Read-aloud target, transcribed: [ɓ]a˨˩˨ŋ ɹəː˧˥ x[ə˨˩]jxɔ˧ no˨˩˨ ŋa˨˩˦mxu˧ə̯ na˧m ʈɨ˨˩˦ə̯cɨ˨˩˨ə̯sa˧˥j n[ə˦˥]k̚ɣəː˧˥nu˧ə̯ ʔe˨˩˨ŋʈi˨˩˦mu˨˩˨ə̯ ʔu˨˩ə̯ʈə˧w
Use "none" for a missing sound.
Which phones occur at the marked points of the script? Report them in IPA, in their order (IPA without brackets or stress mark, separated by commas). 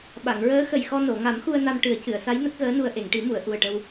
ɓ, ə˨˩, ə˦˥